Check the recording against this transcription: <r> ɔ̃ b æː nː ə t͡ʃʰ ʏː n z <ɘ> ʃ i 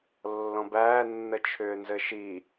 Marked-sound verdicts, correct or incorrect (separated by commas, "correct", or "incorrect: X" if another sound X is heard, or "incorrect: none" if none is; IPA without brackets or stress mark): incorrect: lː, correct